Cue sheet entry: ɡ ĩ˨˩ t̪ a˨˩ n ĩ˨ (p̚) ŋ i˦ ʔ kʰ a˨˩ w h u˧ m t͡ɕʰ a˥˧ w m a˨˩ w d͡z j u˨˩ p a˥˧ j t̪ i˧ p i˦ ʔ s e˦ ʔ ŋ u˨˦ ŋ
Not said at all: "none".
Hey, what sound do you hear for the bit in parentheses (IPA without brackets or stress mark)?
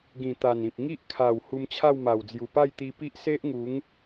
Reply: p̚